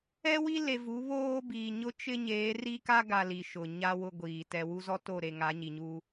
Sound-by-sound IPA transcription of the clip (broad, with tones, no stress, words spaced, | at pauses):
ɛ˦wi˦ le˨ vu˨˦βoː˦biː˨ ɲʊ˦t͡ʃɪ˦ ɲeː˨˦ri˦ka˦ɡa˨ li˨ʃʊ˨ɲa˦ wʊ˦ɡʷiː˨ tɛ˨wu˦zɔ˦ to˦˨ɾe˨ ŋa˨˦ɲi˨ɲuː˦